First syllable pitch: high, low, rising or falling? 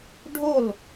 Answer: falling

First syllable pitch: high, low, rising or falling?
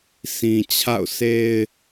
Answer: low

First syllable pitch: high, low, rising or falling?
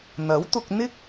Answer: rising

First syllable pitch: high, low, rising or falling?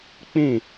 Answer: falling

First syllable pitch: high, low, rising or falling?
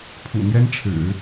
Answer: low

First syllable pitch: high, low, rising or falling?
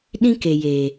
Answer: high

